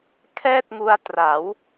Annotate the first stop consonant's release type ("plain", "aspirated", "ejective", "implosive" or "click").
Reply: aspirated